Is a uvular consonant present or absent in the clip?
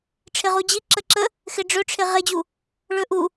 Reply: present